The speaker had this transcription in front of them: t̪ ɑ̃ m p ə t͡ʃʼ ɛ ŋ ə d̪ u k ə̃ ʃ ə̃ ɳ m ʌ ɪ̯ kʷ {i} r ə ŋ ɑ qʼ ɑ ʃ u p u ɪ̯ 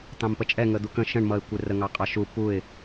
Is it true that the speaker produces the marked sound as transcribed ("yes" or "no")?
no